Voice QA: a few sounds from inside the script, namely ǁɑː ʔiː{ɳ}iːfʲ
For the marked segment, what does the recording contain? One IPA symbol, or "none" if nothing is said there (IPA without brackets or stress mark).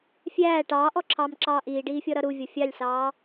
ɖ